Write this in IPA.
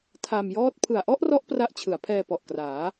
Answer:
tʰ a˧ m j ɔː˥˩ t̚ pʰ ɯ˨˩ a̯ ʔ ɔ˥˩ ʔ r ɔ˦˥ ʔ p r a˦˥ ʔ t͡ɕʰ ɯ˩˦ a̯ pʰ ɛː˧ p ɔ˨˩ ʔ k r aː˩˦

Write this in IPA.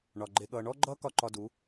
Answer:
ɳ ɒ˨ ɡ͡ǃ e˧ ɠ ʌː˧ ɳ ɔ˦ ɡ͡ǃ ʌː˦ k ɒ˦ ǃ ɒ˧ d u˨˦

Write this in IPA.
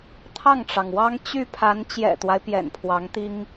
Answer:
t̪ʰ ɑ˥˩ ŋ ʈ͡ʂ ɑ˩ ŋ w ɑ˥ ŋ t͡ɕ y˥˩ pʰ a˧˥ n t͡ɕ j ɛ̰˨˩ t̪ w a˦ ɪ̯ p j ɛ̰˨˩ n pʰ w ɑ˧˥ ŋ t̪ i˥ ŋ

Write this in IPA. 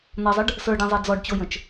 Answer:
n̪ ʌ zˤ ə ɖ | s ə˞ ɖ ɛ̃ zˤ ɛ d͡z ɔ ɖ t͡ɕ o j ə̃ t͡ʃ

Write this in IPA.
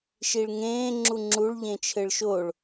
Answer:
ʃ i ɭ ŋ ẽː ŋ͡ǁ u ŋ͡ǁ u ɭ ʎ ẽ t͡ʃʰ ɘ ɭ ʃ o ɭ

